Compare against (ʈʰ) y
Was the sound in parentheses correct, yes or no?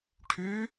yes